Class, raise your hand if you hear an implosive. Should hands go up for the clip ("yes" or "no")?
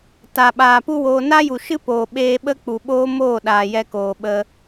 yes